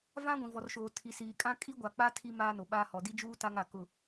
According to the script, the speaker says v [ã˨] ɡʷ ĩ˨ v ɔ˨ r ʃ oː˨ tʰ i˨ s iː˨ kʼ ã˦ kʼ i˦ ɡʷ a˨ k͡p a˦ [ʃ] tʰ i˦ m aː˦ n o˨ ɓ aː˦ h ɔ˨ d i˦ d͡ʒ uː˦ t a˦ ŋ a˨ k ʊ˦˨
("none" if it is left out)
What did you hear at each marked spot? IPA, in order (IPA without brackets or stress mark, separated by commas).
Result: ã˦, none